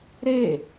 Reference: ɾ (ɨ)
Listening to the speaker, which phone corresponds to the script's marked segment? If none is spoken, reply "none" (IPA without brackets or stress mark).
e